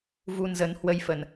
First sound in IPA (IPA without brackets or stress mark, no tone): v